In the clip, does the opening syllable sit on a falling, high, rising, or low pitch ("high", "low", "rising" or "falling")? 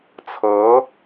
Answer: rising